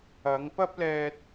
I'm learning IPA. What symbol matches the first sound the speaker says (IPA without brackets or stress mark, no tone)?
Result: ɐ